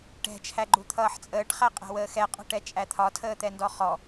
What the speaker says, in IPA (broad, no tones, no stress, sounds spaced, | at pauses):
ʈ ɛ̤ t͡ʃʰ æ ɡ͡ǃ u t̪ʰ ʌː ħ t͡sʼ əː ʈ χ æ qʼ æ̤ w əː x ɛ qʼ ɔ̤ ʈ ɛ t͡ʃʼ æ t̪ʰ ɒ tʰ əː t̪ ɛ n d ɔ χ ɔ